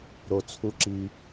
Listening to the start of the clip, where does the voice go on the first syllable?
low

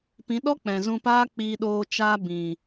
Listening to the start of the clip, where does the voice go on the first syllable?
rising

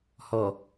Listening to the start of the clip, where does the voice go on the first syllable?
low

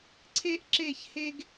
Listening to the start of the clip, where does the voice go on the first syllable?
high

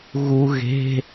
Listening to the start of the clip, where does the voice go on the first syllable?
low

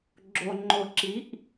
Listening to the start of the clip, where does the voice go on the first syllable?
low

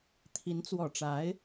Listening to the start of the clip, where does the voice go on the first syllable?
rising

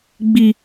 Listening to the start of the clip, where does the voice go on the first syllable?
high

